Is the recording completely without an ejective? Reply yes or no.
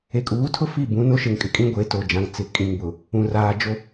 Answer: no